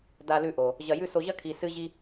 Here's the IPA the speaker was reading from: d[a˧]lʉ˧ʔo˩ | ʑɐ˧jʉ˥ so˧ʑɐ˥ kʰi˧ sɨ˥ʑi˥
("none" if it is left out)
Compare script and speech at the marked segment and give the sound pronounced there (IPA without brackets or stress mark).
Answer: a˧